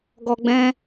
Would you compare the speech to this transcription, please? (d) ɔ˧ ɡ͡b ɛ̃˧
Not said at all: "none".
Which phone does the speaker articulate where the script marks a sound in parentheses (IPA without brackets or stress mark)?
ɡ